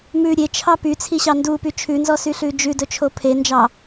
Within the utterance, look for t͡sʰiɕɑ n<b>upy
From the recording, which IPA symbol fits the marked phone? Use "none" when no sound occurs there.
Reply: d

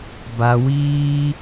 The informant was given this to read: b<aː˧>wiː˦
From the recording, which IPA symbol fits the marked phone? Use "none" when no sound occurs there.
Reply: a˧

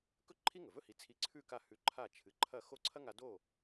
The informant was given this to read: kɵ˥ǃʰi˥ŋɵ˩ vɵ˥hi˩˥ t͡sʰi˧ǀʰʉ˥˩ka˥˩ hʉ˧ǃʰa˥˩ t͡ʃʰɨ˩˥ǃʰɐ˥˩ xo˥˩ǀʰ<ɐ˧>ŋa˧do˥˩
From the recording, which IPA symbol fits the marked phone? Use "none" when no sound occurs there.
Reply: ɐ˥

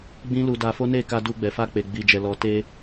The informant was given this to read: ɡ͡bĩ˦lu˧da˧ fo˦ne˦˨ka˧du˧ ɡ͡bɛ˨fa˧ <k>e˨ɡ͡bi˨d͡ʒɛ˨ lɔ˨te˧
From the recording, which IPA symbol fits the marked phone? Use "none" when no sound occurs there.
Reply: k͡p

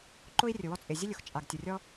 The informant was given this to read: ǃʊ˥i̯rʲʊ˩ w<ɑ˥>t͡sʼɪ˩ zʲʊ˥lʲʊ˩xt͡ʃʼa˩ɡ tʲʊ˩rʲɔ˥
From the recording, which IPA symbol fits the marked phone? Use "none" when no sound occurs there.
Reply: ɔ˥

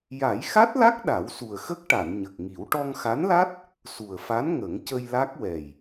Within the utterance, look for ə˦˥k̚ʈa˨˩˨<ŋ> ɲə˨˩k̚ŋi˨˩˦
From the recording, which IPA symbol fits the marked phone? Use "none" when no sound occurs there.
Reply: n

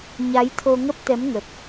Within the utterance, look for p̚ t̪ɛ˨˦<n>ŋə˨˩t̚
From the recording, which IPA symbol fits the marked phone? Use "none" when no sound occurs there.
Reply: m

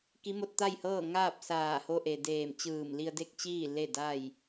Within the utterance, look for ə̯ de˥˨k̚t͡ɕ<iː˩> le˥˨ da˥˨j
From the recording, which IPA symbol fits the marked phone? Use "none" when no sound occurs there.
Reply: iː˥˨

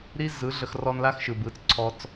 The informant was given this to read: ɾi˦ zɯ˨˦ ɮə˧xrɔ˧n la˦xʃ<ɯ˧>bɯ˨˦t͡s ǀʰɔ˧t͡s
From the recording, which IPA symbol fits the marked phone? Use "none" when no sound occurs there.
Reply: ɯ˨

